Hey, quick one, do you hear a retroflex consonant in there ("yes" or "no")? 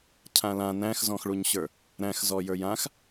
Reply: yes